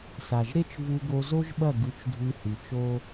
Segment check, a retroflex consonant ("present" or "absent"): absent